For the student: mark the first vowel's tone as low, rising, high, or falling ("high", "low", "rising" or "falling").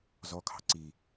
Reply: high